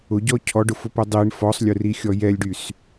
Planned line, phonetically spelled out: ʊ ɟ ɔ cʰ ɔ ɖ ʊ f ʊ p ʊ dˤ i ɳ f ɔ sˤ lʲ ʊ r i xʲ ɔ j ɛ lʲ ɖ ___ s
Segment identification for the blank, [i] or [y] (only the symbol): y